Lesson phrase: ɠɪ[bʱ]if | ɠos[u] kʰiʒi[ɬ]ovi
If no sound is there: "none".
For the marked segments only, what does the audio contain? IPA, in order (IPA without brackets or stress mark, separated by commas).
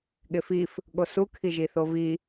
f, u, θ